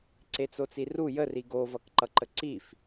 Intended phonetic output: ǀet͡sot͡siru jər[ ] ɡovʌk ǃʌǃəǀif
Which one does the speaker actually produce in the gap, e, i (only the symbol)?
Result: i